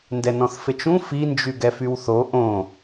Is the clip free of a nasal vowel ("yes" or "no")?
no